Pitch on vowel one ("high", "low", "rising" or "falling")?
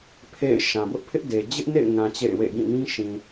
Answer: falling